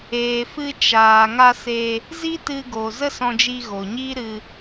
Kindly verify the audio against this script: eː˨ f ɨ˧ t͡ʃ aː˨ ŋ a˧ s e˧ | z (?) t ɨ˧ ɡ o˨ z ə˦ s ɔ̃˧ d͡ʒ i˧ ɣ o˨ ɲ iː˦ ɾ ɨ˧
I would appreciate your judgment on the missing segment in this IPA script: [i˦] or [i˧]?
i˦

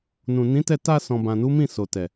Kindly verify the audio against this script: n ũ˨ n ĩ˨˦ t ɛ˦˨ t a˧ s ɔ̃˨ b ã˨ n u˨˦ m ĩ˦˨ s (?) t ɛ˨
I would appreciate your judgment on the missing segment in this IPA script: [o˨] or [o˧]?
o˨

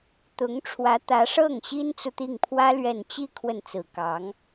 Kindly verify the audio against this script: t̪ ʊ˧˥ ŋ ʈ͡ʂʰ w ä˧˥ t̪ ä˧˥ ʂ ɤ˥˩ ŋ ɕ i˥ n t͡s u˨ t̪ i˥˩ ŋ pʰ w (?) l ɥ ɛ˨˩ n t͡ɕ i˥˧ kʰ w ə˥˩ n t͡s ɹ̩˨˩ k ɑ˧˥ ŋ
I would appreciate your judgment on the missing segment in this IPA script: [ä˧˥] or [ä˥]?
ä˥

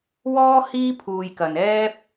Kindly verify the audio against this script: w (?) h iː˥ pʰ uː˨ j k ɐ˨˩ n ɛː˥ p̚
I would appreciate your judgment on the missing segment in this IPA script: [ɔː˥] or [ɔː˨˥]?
ɔː˥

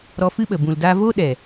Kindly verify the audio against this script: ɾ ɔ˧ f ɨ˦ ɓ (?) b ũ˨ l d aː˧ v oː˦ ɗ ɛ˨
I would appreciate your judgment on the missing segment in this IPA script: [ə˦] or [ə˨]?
ə˨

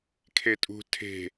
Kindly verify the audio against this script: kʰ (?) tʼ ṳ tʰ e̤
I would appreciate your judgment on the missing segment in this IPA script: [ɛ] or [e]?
e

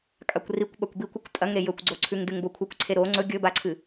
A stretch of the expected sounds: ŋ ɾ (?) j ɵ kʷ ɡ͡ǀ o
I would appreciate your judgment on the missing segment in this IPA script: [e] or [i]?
e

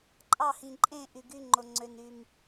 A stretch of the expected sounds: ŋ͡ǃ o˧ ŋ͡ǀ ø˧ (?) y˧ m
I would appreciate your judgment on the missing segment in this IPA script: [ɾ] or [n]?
n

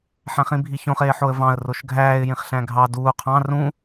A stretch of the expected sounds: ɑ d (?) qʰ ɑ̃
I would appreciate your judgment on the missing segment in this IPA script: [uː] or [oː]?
uː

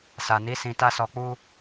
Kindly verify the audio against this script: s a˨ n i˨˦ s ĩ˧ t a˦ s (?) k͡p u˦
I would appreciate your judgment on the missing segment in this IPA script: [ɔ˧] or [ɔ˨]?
ɔ˧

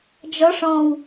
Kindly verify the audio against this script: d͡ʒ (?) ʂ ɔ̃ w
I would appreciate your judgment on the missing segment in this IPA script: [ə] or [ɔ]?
ɔ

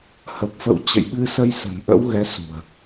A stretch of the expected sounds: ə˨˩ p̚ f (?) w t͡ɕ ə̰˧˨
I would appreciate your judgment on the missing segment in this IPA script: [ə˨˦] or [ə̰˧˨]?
ə̰˧˨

